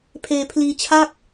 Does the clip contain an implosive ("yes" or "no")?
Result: no